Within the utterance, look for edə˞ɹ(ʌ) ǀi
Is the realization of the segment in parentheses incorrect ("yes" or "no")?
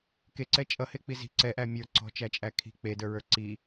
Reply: yes